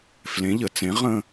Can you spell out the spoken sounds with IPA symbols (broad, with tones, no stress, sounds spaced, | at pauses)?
f l ẽ˨˥ ʎ ə˩˧ t͡s ẽ˨˥ ʁ ə̃˥˧